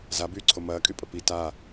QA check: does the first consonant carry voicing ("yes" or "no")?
yes